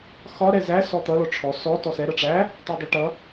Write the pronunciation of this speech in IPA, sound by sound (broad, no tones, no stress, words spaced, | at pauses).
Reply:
xɒ ɾɛzæ sɔt̪ʌ lɔʈ͡ʂʰɔ sɔ tɔsɛ ɾʌʈ͡ʂæ | tɔdˤəʈʌ